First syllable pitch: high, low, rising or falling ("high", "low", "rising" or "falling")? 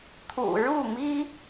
low